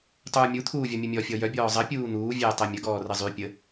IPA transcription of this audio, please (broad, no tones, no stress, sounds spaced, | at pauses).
tˤ uː mʲ u t̪ʰ uː vʲ ɔ mʲ u mʲ ɔ fʲ ɔ j œ bʲ ɔː zˤ ə pʲ uː n̪ uː vʲ ɛː tˤ ɛ mʲ ə ɡ ɔː r ə zˤ y pʲ ə